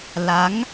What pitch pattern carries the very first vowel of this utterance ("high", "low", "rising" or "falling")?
rising